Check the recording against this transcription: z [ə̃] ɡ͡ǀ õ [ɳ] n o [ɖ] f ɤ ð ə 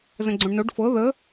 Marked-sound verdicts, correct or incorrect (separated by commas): correct, correct, correct